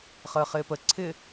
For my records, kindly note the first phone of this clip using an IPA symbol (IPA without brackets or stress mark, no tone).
χ